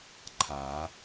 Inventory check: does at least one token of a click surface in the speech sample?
yes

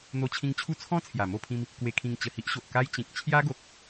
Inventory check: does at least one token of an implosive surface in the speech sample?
no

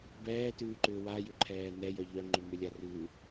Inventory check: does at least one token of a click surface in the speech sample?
yes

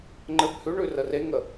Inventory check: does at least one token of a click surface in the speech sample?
yes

